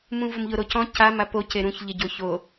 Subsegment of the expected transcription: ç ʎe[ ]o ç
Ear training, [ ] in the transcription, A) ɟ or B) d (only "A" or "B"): A